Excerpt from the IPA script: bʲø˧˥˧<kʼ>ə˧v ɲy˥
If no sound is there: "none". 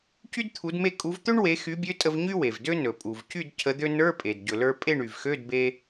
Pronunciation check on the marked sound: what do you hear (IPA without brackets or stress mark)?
tʼ